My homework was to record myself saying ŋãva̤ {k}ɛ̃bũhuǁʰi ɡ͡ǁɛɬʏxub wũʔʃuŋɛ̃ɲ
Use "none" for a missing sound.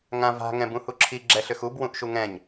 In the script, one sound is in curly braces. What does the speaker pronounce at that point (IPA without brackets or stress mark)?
ŋ